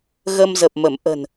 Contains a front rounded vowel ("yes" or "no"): no